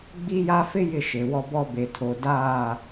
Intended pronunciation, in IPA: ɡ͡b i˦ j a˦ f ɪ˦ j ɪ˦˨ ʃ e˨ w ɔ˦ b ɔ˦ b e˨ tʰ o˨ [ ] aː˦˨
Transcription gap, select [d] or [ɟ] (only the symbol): d